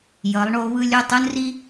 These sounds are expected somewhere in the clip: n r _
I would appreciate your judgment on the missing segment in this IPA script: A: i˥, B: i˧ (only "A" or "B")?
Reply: A